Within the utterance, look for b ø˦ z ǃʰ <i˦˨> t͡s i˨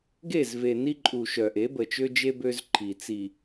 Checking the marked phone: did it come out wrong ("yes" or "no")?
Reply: yes